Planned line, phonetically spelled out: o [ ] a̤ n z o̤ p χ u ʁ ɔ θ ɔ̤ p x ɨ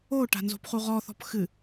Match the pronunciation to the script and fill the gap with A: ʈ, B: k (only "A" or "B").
A